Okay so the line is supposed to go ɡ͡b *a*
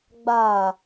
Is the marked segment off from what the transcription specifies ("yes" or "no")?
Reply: no